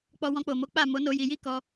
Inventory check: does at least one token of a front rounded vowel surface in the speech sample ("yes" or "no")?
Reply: no